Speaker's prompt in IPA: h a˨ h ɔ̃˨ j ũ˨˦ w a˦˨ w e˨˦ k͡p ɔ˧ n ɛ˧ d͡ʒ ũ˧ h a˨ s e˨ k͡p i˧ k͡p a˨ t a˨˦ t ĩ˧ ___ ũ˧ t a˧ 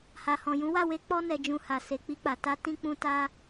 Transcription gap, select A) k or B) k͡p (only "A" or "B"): B